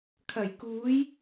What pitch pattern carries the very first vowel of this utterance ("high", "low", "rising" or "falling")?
low